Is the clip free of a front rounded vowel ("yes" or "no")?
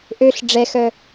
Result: no